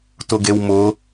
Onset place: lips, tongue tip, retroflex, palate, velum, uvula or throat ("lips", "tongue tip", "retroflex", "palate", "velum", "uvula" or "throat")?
tongue tip